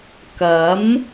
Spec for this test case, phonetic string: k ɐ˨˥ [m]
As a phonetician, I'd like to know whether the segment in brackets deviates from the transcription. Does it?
no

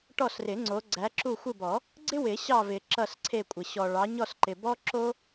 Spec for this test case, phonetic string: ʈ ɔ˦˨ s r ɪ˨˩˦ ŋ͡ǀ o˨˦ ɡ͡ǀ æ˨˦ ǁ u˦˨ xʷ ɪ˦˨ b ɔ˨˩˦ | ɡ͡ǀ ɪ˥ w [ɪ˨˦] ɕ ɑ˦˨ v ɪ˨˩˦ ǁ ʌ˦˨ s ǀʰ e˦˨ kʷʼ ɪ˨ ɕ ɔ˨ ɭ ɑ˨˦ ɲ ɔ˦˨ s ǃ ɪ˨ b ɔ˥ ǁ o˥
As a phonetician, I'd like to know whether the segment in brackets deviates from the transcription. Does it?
yes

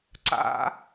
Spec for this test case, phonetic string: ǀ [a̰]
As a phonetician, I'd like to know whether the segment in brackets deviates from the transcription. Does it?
no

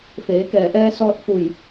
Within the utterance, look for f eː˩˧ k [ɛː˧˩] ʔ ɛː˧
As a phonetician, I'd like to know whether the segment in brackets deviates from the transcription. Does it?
no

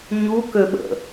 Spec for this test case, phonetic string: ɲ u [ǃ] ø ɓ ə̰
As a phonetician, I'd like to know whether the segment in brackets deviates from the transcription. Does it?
yes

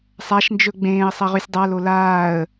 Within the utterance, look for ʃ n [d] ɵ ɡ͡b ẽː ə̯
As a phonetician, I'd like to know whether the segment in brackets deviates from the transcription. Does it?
yes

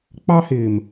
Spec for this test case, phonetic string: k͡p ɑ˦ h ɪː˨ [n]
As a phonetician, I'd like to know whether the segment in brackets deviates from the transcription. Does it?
yes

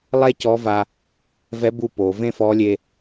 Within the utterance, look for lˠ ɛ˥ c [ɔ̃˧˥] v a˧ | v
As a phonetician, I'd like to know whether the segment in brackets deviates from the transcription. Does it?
yes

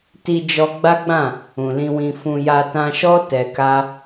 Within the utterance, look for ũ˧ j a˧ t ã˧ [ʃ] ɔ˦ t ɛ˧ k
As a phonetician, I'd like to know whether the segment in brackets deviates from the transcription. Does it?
no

